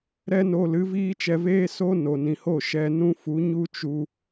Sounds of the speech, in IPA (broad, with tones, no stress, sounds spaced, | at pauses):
ɾ ɛ˦ n o˧ l ɨ˨˦ v iː˦ t͡ʃ ɛ˧ v eː˦ s o˦ n o˨ n ĩ˨ h o˦˨ ʃ ɛ˧ n ũ˦ f u˨˦ ɲ u˦ t͡ʃ u˧